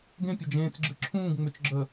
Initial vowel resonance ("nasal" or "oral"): nasal